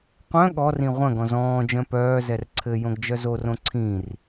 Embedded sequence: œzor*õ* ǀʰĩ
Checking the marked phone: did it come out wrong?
no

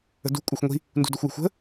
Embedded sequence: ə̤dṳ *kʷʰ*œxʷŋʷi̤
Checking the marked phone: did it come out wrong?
yes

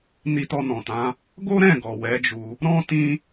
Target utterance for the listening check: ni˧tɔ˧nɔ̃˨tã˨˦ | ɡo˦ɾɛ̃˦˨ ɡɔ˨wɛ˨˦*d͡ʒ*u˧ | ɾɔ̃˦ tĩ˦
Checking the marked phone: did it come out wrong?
no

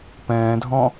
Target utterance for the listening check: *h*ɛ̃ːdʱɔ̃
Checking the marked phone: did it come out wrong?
yes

